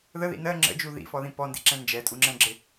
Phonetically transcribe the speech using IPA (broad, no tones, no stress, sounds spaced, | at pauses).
ð ə ð ḭ n ɜ ŋ͡ǁ ə̰ d͡ʒ u ð ḭ f ɔ ð ĩ p ɔ n d ḭ ǁ ɛ̃ n d͡ʒ ɛ tʼ u ŋ͡ǁ ɛ̃ ɡ͡ǁ ɪ